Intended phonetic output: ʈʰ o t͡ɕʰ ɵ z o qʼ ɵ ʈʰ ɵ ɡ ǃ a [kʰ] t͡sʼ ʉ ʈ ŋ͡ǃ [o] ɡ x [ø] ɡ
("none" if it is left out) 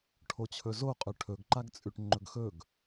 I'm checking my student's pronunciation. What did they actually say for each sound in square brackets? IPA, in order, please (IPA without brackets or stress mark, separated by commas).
ɡ, ɵ, ɵ